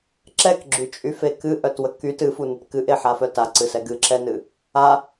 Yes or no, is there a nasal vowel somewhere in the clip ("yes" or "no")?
no